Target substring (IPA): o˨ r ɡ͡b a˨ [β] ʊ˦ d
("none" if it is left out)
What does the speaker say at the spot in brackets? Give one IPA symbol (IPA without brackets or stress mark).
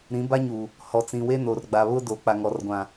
β